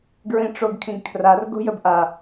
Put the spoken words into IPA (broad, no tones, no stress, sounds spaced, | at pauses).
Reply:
ɡ ɹ ĩ ʈ͡ʂ o ɡ kʰ ĩ ɡ kʰ r a r ɡ o̤ j ə b ʔ a